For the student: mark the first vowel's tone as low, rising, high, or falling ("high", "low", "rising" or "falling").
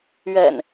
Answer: low